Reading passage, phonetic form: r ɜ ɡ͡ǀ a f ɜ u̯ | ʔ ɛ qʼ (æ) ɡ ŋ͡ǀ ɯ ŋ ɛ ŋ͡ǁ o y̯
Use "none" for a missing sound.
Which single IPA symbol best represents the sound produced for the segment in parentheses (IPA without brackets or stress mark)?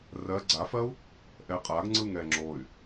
a